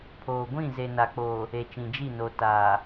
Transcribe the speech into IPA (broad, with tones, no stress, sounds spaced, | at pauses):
pʰ oː˨ ɡʷ ĩ˦˨ z e˨ n a˨ k͡p oː˨ | e˨ t͡ʃ ĩ˨ d͡ʒ i˦˨ n o˨ t aː˨